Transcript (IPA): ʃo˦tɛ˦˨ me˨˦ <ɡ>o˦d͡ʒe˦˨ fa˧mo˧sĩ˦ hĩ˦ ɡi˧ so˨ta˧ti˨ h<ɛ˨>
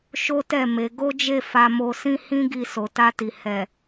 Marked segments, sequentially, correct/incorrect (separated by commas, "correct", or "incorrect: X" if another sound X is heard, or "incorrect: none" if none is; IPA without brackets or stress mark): correct, correct